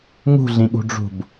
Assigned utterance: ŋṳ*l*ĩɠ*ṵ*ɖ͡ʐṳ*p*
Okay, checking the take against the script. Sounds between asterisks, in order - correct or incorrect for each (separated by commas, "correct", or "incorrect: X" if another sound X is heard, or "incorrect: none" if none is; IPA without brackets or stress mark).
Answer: incorrect: ɮ, incorrect: ṳ, incorrect: b